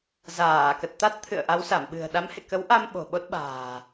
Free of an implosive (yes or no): no